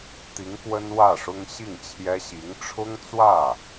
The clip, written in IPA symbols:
t̪i˧˥ŋkwə˥n wä˥˩ʂʊ˥ŋ ɕi˥˩ŋt͡ɕʰjɛ˥ ɕi˧˥ŋ ʈ͡ʂʰʊ˥ŋt͡swä˥˩

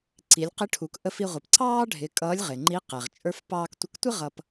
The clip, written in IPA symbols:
ǀi˩˧lʲqɪ˧˥ʈʰu˩˧k ʔə˧f i˧ʁʷʌ˩p ǀɑː˥ɖʱɪ˩˧ kʼʌː˧˥lʲʁɪ˩ŋ͡ǃi˧˥ qɛ˩ʁ t͡ʃʼə˞˧f pɑː˧ktʷə˧ktʷɪ˥ ʁʌ˧p

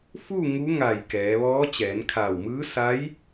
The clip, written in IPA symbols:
fu˥˨ ŋu˧˥ŋa˧˩j kɛː˩˧ʋɔː˧˥ t͡ɕɛː˩˧nkʰaː˧˩wmɯː˧˥ sa˧˥j

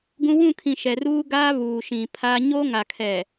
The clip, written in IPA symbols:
ɡũ˦ wũ˦˨kʰĩ˨ ʃɛ˨ruː˦ɡaː˦ βuː˨ʃĩ˨pʰa˦ ɲo˦ŋa˨kʰɛ˨

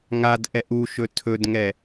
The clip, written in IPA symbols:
ŋadʔɛ ʔuʃɵ tʰɵdŋɛ

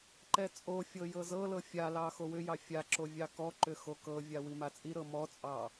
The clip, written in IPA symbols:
ǃɛt͡sʼofʲɤ jɤzɤlɤ fʲalɑ xowʏjɑ fʲa ǁovʲɑkɔǃʏ xokɤvʲa wimat͡sʼiɾɤ mɔt͡sʼɑ

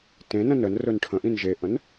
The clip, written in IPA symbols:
tẽnə̃ nənrɵn ʈʰə̃ʔĩn ʒeʔə̃n

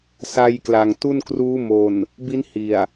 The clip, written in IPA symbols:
sa˧jkla˨˩ŋ tu˥˩nkruː˦˥mo˨˩n | bi˦˥n hi˨˩a̯

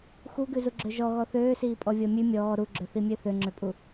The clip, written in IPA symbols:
xuɡʉzuɡ͡ǁø ʒɔɣɔ θøːsiːpʼɔvʲɔ mʲʉ mʲɔː ɾuɡ͡ǁøθimʲø θøŋ͡ǁøpʼu

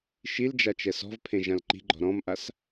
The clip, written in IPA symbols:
ʃil d͡ʒat͡ʃɛsɔ̤vpʰẽ ʒãlǃi̤ɡ͡ǃɔ̤ ɾɔ̃mʔas

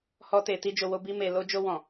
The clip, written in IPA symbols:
hɔ˧te˨ ti˧d͡ʒo˨wo˧bi˧ me˨ lo˧d͡ʒo˧wɔ̃˨

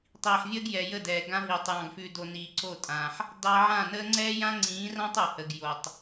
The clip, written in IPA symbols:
tˤiː˨ħvʲəː˦ɡjɛ˨jə˦˨ dɛː˨ɡã˦ ɦiː˨tˤjɑ̃˧ɡfʉ˧do˧ niː˨ǀo˦˨tʼãː˨ħ | dɑ˧ʕã˦˨nəː˦ ŋ͡ǀɛː˦jã˦ŋ͡ǀĩː˨˦rã˦tˤ o˨hə˨ɡ jo˨tˤ

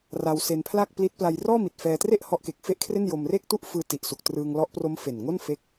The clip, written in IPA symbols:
ra˧wse˧npʰla˥˩k̚pli˦˥t̚ pla˧jrɔː˥˩mi˨˩t̚ fɛː˧tre˥˩ʔ hɔ˦˥ʔke˨˩k̚ fe˥˩ʔkʰre˥˩n jo˧mre˥˩k̚ tu˥˩ʔfɯː˧ ti˨˩ʔsu˨˩k̚trɯː˧ŋ lɔ˦˥ʔpro˦˥m fe˨˩nŋo˥˩nfe˦˥k̚

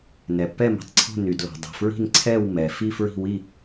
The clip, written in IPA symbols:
nɛ˩pːɛ˥˨mi̤˩tˤǀʰo̤˥˨ ny˩dlɔ̤˩ dˤɛ̤˩fɹi̤˥˨n ǀʰɛ˥˨w mɛ˩ fi˥˨fɹi̤˥˨wi˥˨

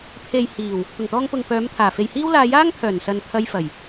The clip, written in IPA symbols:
pʰe˨jhiː˨˩w | t̪ʊ˨˩ŋt̪ɔː˧ŋpʊ˨ŋpœː˨˧m t̪ʰaː˨˩fe˨jhiː˥w laː˧jaː˥ŋpʰœː˨˩nsɐ˨n pʰɐ˧jfɐ˨˩j

